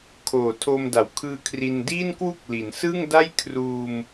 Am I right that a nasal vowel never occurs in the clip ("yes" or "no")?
yes